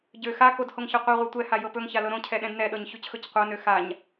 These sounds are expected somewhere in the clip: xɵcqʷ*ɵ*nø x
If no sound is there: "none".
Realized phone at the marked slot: ɤ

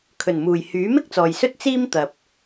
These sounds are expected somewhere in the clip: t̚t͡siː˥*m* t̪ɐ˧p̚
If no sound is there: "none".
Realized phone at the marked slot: m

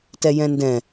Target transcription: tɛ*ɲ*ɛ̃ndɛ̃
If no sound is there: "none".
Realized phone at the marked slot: j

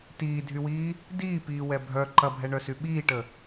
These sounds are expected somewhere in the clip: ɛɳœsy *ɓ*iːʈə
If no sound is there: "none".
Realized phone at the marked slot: ɓ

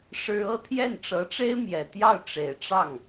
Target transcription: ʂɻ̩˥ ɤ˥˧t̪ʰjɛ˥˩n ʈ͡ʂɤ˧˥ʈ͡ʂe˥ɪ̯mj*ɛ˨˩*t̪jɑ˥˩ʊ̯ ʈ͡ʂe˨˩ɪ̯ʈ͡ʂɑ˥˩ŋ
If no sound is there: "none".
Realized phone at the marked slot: ɛ˨˩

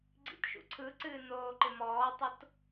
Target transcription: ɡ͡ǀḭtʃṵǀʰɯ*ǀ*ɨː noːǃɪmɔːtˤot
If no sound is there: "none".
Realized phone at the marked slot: ǀ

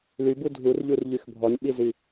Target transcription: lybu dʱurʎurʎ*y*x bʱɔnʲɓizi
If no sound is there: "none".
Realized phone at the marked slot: y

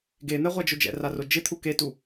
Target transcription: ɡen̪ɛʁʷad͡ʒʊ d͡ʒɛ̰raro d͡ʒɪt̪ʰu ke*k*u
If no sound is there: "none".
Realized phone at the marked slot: t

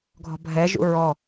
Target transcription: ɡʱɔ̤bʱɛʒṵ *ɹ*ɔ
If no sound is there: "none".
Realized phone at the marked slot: ɹ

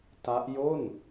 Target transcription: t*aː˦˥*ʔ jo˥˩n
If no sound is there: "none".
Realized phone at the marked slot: a˦˥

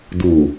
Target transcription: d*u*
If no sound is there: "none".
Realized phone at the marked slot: u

